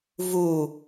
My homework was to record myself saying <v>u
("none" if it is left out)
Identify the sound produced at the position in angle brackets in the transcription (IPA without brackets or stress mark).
v